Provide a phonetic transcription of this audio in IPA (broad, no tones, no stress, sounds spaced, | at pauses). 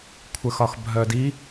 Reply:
kʷʰ ə x ɒ x bʱ œ d i